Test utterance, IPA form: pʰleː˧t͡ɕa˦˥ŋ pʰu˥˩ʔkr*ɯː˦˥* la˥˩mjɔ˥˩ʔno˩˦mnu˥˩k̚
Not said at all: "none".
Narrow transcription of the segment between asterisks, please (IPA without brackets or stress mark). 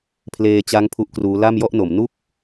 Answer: uː˦˥